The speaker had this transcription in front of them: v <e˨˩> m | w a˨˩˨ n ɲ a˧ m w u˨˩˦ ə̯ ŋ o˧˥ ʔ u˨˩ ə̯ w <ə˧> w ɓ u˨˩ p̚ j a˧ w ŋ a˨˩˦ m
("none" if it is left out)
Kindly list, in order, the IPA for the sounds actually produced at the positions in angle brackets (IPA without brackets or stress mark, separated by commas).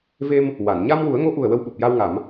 e˧, ə˧